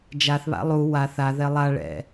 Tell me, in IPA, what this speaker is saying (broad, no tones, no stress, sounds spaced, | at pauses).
d͡ʒ a θ β a̰ lˠ u w a θ a ð ɛ lˠ a ɭ ɛ̰